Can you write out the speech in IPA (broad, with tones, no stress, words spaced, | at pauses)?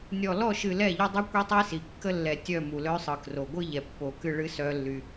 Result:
nʲɔ˨lɔ˦˨ʃɨ˨ lɛ˦˨ʎɔ˦ dˤœ˦ kʷi˦tˤi˦si˨ kːə˦lːɛ˨ tʲœ˦˨ mu˨lœ˦sˤɯ˨kro˨ ɡʷɯ˦ʎɛ˨pːo˨kɨ˦˨ ɭɨ˦sœ˦lːy˦